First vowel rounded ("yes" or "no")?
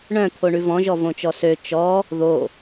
yes